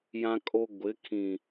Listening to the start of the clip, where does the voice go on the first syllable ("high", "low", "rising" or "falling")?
high